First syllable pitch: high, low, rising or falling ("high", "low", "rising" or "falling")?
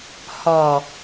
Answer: low